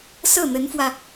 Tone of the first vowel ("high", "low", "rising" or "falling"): falling